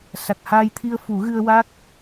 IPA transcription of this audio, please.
s a˨˩ k̚ h aː˧ j t̪ʰ i˧ ə̯ f u˨˩˦ ɣ ɨ˧ ə̯ w a˦˥ k̚

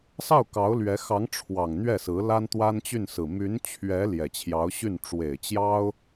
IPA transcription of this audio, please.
s ɑ˥˩ ʊ̯ k ɑ˧˥ ʊ̯ l ɥ ɛ˧˥ x ɑ˧˥ ŋ ʈ͡ʂʰ w ɑ˨˩ ŋ n̪ ɥ ɛ˥˩ s ɹ̩˧˥ l a˥ n t̪ w a˥ n t͡ɕ y˥˩ n s ɹ̩˨˩ m y˧˥ n t͡ɕʰ ɥ ɛ˧˥ l j ɛ˨˩ t͡ɕʰ j ɑ˧˥ ʊ̯ ɕ y˥˩ n ʈ͡ʂ w e˨˩ ɪ̯ t͡ɕ j ɑ˥ ʊ̯

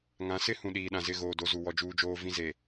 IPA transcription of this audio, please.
ŋ ã˨˦ s ɪ˦ h ũ˨ ɗ iː˨ ɗ ã˨ z ɪ˦˨ ɣ oː˨ d o˦ z u˨ w ɔ˦ d͡ʒ uː˦ d͡ʒ oː˦ v ĩ˦ z e˨

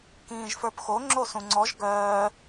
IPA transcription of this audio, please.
k ĩː ʒ f ə˞ p x o ŋ͡ǁ o s ũ ŋ͡ǀ ɔ ʒ ɡ œː

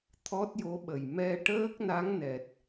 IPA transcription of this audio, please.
t̪ʰ ɔ˦˥ t̚ j o˧˥ ɓ ə˨˩ j m ɛ˧ ʈ əː˦˥ k̚ n a˧˥ ŋ n ɛ˨˩ t̚

